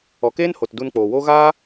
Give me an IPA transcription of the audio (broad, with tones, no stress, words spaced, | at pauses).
ɔ˨keː˦nho˨t du˧nk͡poː˨wo˦ ɣaː˦